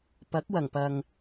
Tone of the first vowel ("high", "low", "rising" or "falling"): rising